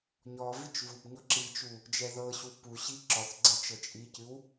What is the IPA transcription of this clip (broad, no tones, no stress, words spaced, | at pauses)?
ɲɔ vit͡ʃvubɲɔ ǁit͡ʃu | d͡ʒɛðɤɕu puɕi ǁɔθ ɡ͡ǀɛt͡ʃɤt͡ʃʼicɨw